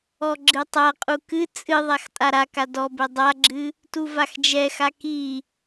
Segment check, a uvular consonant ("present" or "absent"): present